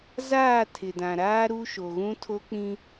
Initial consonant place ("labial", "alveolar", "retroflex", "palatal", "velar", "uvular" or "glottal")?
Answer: alveolar